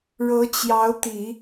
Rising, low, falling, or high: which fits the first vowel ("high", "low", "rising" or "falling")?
rising